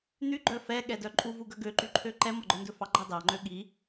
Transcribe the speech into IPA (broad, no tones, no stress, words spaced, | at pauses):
n̪yɡ͡ǃœ fɛɠɛdœ ǃʼuvuɡœ ɡøǃyǃʰø ǃɛmɔɡ͡ǃœndɵ fɑɡ͡ǃɑ dɑŋ͡ǃø ɠi